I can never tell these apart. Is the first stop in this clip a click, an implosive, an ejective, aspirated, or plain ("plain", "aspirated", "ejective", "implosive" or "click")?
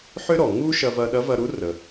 implosive